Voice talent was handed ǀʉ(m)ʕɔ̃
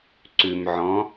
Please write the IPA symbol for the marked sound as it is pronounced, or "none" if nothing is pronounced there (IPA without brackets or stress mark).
m